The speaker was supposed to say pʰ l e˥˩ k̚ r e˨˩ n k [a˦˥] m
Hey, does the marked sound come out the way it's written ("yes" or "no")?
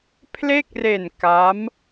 yes